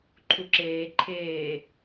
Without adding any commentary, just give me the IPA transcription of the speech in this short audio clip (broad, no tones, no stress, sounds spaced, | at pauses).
ǃʰ u ǁ eː ǃʰ eː